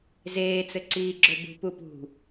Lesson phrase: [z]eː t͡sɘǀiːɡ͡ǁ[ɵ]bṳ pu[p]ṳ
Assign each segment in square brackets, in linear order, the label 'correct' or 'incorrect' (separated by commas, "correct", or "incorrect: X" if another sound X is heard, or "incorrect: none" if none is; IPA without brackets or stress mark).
correct, correct, correct